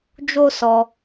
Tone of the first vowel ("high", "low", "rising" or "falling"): high